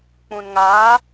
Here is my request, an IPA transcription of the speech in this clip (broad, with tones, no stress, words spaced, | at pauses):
k͡pũ˨nŋaː˨˦